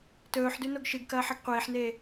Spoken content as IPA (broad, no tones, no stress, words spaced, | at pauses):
tɵːħdʉ noɡʃɨɡkɐː ħɐɡqʷeːħneː